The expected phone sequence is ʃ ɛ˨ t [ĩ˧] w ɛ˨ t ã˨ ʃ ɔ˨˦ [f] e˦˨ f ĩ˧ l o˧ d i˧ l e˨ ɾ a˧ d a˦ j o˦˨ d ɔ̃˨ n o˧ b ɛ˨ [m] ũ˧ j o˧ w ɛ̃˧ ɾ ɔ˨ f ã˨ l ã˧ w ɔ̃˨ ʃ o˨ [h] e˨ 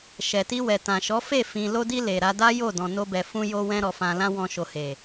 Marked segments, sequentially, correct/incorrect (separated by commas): incorrect, correct, incorrect, correct